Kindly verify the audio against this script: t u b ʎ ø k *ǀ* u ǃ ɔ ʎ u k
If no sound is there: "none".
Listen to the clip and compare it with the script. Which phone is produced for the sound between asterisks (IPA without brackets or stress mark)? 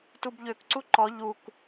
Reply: ǀ